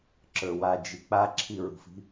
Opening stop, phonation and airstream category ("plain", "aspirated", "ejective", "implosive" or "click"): click